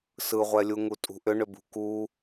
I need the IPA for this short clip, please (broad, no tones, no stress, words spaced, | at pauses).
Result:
sɯʁʷɛlʲuŋu tʼṳʔʏ ɳʏbṳku